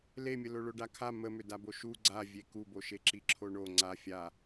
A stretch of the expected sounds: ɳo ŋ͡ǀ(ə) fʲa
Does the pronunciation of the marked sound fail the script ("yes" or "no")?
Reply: yes